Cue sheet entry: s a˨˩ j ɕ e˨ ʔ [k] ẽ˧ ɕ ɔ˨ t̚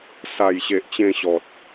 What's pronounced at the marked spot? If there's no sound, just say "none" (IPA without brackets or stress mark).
t͡ɕ